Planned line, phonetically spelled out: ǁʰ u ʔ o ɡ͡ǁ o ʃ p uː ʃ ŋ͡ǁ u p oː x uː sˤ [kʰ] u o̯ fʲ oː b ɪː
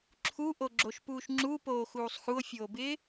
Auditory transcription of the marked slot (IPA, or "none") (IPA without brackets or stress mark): x